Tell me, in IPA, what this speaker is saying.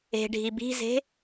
e̤ ɖʱ i b i̤ z e̤

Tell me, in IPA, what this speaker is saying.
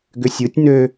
ɡ ʏ sʲ ɯ tʲ n ø

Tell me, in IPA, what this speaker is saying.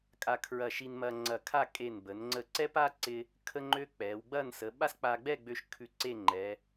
kʼ a˧ kʰ ɹ ɐ˧˩ ʃ i˧ n m ɐ˧ ŋ͡ǀ ɐ˧˩ kʰ a˥˧ kʼ e˧˩ n b ə˩˧ n ŋ͡ǀ ə˧˩ ǀ ɛ˥ p a˥ ǀ ɪ˥ | kʰ ə˥ ŋ͡ǃ ø˥ k͡p ɛ˩˧ w ɡ͡b ɐ˥˧ n s ə˩˧ ɓ a˥ s k͡p a˧ ɡ͡b ɛ˥˧ ɡ͡b ø˧ ʃ kʰ ʉ˧ ǀ e˥˧ ŋ͡ǃ ɛ˩˧

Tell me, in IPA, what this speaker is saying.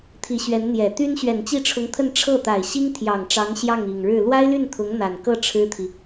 t̪ʰ i˧˥ ɕ ɥ ɛ˧˥ n n̪ j ɛ˨˩ t̪ y˥ n ɕ ɥ ɛ˨˩ n t͡ɕ i˥˩ ʈ͡ʂʰ ʊ˧˥ ŋ t̪ʰ ə˥˧ n ʈ͡ʂʰ ɤ˥˩ t̪ a˨˩ ɪ̯ ɕ i˥ ŋ t̪ʰ j ɑ˨˩ ŋ ʈ͡ʂ ɑ˧˥ ŋ ɕ j ɑ˥˩ ŋ i˨˩ ŋ ɻ ɻ̩˥˩ l w a˥ ɪ̯ l y˥˩ n t̪ʰ ʊ˧˥ ŋ n̪ a˨˩ n k ɤ˥˩ ʈ͡ʂʰ ɻ̩˥ t̪ʰ i˨

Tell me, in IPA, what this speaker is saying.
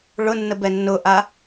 ɭ ʊ nː ə b ɛ nː ʊ ʔ a

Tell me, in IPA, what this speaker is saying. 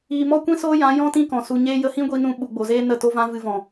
iː˨ m ɔ˦ kʷ ĩ˦ s oː˦ j ã˨˦ j ɔ̃˦ t ĩ˦ k ɔ̃˨ s u˧ ɲ eː˦ j ə˧ h ĩ˦ ɡʷ i˧ n ũ˧ ɓ u˨ ɡ͡b o˨ z eː˦ n ə˦˨ t o˦ v ã˦ v ɨ˧ v ɔ̃˨

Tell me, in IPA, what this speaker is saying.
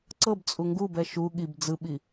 ǀ ɤ b t͡sʼ u ŋ ɡ u b ɛ ʃ u ɠ i b d͡z ɯ ɓ i

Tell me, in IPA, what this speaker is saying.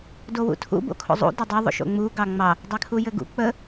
d o w ṵ tʰ ṵ b o̰ kʰ o̰ zˤ ṵ d ə dˤ ɘ ðˤ o̰ ʃ o̰ ŋ͡m u ɡ ɑ ŋ͡m ɑ | dˤ e kʰ u j ɘ ɡ ṵ k͡p ə

